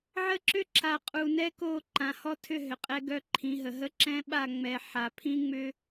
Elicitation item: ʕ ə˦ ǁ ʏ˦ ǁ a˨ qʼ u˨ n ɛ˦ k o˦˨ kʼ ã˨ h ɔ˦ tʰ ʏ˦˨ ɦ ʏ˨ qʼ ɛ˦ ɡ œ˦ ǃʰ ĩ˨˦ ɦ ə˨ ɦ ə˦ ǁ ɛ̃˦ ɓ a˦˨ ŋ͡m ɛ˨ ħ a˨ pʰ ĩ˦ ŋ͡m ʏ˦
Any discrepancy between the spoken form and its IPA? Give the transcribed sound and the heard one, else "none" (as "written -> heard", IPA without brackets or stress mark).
kʼ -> ǃ